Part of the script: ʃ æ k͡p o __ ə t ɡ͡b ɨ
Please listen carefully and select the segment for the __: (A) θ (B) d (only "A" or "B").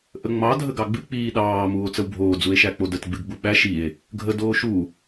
B